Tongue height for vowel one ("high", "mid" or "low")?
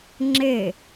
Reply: mid